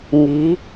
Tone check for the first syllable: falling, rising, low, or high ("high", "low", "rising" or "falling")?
rising